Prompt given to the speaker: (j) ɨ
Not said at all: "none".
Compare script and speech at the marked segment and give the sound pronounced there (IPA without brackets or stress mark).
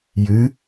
j